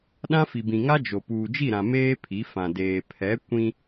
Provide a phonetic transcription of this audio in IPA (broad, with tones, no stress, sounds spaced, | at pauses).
ɗ ã˦ f i˨ b ĩ˨ ŋ a˦ d͡ʒ o˨ p uː˨ d͡ʒ i˦˨ ɾ ã˨ m eː˦ pʰ i˨˦ f ã˨ d eː˨ pʰ ɛ˨˦ kʷ ĩ˦